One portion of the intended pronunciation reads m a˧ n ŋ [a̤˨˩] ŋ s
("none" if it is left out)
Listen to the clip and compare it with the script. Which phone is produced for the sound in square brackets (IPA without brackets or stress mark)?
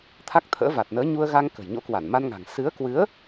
a̤˨˩